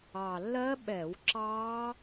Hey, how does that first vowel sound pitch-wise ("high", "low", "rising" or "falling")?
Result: low